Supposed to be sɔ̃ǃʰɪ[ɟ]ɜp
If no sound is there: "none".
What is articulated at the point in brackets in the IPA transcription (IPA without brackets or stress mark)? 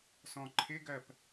ɡ